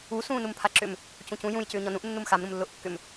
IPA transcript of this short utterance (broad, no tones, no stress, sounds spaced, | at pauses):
u s ũː n u m pʰ a ǁ ʏ m | c ũ c ũ j ũ j c ʏː ɲ ɔ n ũ ʔ nː u m x a m ɾ ũ m lː ʊː ʔ kː ʏ m